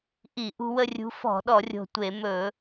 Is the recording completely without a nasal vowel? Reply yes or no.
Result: yes